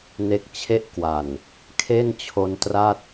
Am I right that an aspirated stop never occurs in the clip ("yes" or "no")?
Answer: no